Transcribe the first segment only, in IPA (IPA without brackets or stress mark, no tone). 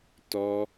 t